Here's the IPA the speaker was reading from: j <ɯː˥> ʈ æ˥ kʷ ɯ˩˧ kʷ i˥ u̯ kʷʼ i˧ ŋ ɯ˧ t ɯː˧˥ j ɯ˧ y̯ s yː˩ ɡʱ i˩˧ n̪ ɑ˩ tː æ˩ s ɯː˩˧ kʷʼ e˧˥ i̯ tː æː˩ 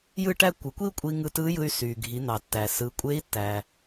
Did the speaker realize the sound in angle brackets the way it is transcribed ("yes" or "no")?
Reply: no